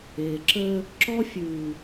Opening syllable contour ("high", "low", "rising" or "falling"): low